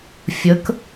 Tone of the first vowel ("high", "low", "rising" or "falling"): rising